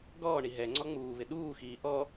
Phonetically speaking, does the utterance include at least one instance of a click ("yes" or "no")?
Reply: yes